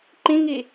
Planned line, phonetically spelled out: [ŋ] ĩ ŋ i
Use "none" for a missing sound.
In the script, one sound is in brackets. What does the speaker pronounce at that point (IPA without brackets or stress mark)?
ǃ